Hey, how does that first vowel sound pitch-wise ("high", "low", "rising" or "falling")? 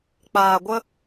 low